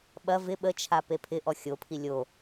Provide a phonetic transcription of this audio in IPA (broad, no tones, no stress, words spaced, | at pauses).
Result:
ɓɐ vɪ ɓət͡ʃʰa pepʰɪʔɔ xʲopʰi lʲo